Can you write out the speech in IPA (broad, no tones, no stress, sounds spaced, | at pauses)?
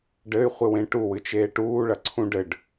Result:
ɖ ɘ y̯ χʷ ɨ w ẽ ʈ u w ɨ t͡ʃ eː ʈ uː ɭ ɐ ǀʰ ũ ɖ ɘ ɖ